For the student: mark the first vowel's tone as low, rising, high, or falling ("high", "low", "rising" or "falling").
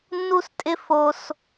high